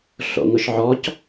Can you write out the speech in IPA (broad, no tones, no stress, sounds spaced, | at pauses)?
ɬ o̰ ŋ ʊ ʃ ʕ ɔ c